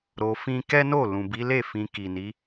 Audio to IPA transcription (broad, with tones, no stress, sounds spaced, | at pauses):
ɾ o˧ f ĩ˦ k ɛ˦ n o˦˨ l ũ˨ b i˨˦ l e˦˨ f ĩ˧ k i˨ n i˨˦